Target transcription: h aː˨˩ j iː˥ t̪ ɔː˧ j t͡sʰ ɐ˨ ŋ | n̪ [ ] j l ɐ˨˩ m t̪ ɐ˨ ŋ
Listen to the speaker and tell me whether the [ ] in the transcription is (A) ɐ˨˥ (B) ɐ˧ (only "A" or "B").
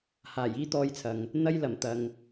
B